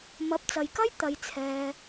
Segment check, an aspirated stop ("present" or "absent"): present